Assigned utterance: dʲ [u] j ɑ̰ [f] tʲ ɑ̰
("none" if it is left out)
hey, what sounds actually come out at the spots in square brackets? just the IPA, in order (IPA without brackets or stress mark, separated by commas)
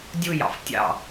u, f